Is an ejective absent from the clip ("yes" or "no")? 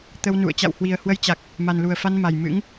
yes